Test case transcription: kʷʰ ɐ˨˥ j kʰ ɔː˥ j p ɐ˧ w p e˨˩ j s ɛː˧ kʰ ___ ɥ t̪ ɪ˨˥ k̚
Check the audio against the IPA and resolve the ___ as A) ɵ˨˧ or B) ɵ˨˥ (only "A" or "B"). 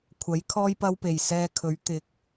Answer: B